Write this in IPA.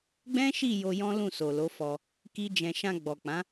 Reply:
ɡ͡b ɛ̃˦ ʃ i˦˨ j o˧ j ɔ̃˦ l ũ˦˨ s o˨ l o˨˦ f ɔ˧ | k i˦ d͡ʒ ɛ̃˧ ʃ ã˧ ɡ͡b ɔ˨ k͡p ã˨˦

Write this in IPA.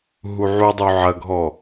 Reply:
ɦ u ʕ u dˤ u ʕ ɐ ɡʱ ɔ

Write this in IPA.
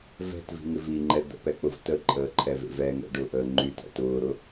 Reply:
v ɛ̤ t v i̤ ŋ ɪ v i ŋ͡ǃ ɛ d̪ ə̰ p ɛ k͡p ʊ v t ə ǃʼ əː ǃʰ ɛ v ḛ v ɛ ŋ ɛ̰ ɖ ʊ ʔ əː ŋ͡ǃ y t ɛ̰ t ʊː ɾ ʊ

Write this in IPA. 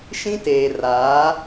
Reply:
ʃ ĩ˦ t eː˨ r aː˨˦

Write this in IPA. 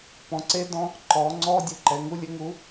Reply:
p ɔ̃˩˧ ǀ e˦˥ d ɔ̃˧˥˧ | ǃ ɔː˩˧ ŋ͡ǀ ɔː˧˥˧ dʲ u˧˥˧ ǃ ɛ˩˧ ŋ u˧˥˧ lʲ ɘ˧˥˧ ŋ u˦˥

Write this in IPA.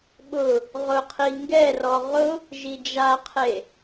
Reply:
ɓ ʊ | ʁ ʊ qʰ i ŋ ɡ ɛ r ɔ ʁ ʊ | ʒ i d͡ʒ a qʰ e

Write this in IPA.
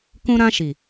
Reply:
k ũ˧ ɾ ã˧ ʃ i˨

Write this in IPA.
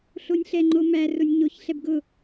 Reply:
ɬ o nʲ ɬ ɛ ŋ͡ǃ o m æ r ʊ nʲ ɲ o ç ɬ ɛ b ɡ ʊ

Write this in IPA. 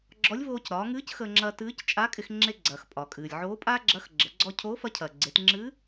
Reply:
ɡ͡ǁ ɔ˧˥ lʲ v oː˧ c ɾ ɒː˩˧ ŋ ɨː˧˥ c x əː˧ ŋ͡ǁ ɐː˧ t ɨː˧˥ c t͡ʃʼ a˧˥ kʼ ɪ˧ x ŋ͡ǁ e˧ ɡ͡ǀ ɐː˩ x pʼ ɒ˩ kʼ ɨː˩ lʲ ʕ oː˧˥ pʼ aː˥ ɡ͡ǁ ɐː˧˥ x ɡ͡ǁ ə˩˧ ɡ͡ǀ ɔ˧ cʰ oː˧˥ f ɐ˧˥ cʰ ɐː˩ ɡ͡ǀ e˩˧ t ŋ͡ǁ ɨː˧˥

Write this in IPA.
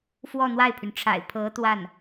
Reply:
f w ɔ˥˧ n̪ w a˥˩ ɪ̯ pʰ y˩ n ʈ͡ʂʰ a̰˨˩ ɪ̯ pʰ ɤ˧˥ t̪ w a˥˩ n

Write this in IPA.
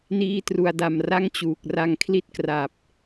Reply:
n iː˧ t r u˧ a̯ d a˧ m r a˥˩ ŋ t͡ɕ uː˨˩ k̚ r a˧ ŋ kʰ l i˥˩ t̚ k r a˨˩ p̚

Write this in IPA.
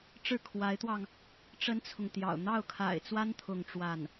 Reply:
ʈ͡ʂ ɻ̩˥˩ kʰ w a˧˥ ɪ̯ t̪ w ɑ˧ ŋ | ʈ͡ʂ ə˥ n t͡sʰ ʊ˨ ŋ t̪ j ɑ̰˨˩ ʊ̯ n̪ ɑ˥˩ ʊ̯ kʰ a̰˨˩ ɪ̯ t͡s w a˥ n t̪ʰ ʊ˥˧ ŋ ʈ͡ʂ w a˥˩ n

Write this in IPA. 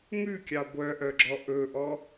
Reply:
ŋ ʉ kʲ ɑ ɡʷ œ ʔ œ ɡ͡ǁ ɔ ʔ ɵ ʔ ɔ

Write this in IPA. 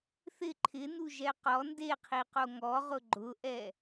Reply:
θ ɪ ǃʰ ɪ n u ʒ ɛ q ɔ n d e qʰ i q o ŋ ɔ ʁ ʊ ɡ͡ǃ ʊ ʔ ɛ

